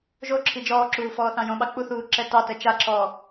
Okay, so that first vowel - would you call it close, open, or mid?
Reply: mid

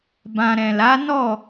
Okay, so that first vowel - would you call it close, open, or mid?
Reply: open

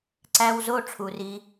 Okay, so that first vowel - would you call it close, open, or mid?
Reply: open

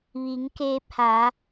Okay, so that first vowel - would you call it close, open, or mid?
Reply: close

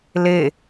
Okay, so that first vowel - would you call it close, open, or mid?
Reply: mid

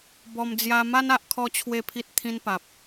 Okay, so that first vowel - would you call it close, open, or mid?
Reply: mid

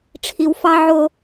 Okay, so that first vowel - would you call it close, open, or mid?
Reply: close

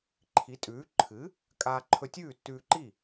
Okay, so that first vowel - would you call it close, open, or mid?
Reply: close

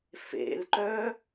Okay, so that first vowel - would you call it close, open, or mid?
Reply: mid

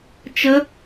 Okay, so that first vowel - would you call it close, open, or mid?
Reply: mid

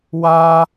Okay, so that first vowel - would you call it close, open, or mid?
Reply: open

